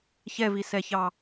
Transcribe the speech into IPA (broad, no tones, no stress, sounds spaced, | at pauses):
ç ɛ v i s ɛ ç ɑ